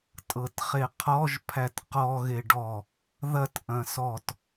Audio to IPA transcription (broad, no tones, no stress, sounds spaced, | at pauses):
tʼ ɤ t χ e qʰ ɔ ʒ pʰ æ t q ɔ ɣ e ɖ ɔ | ð ɐ t ʔ ɐ̃ s ɔ t